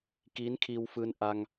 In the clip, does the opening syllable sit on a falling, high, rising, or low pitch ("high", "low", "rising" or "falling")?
rising